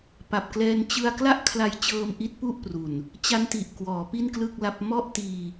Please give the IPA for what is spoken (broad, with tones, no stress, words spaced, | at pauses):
pa˨˩p̚klɛː˧n t͡ɕɯ˥˩a̯ kla˥˩ʔkʰla˧jt͡ɕɤː˧m ʔi˦˥t̚pu˥˩ʔpru˨˩n | t͡ɕa˦˥nti˨˩ʔ kwɔː˩˦pi˥˩nklɯ˥˩k̚la˦˥p̚ mɔ˥˩ʔtiː˧